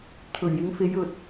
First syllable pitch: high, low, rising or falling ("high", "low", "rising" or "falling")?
low